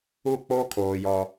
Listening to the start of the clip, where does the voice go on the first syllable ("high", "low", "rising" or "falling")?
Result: falling